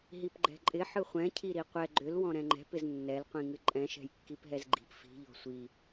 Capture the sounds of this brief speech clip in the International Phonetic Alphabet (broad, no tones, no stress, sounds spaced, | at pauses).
ɦ i p ɡ͡ǃ ɛ̤ ǃʼ ɪ ħ ɯ χʷ ɛ̃ cʰ i ɾ i qʷ ɛ ɡ͡ǃ ʏ l w ɔ̃ ɾ ɛ̃ ŋ͡ǃ ɛ̤ p ɪ z nː ɛ l qʷ ĩ ŋ ɨ ǃʼ ɛ̃ ʃ ɛ̤ j kː i p ɦ ɛ z ɡ͡ǃ i̤ p f i̤ ʎ ɔ̤ sʷ i